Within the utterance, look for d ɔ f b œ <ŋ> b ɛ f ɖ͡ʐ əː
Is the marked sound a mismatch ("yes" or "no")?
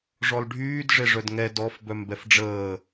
yes